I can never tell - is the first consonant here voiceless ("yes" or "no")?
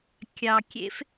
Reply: yes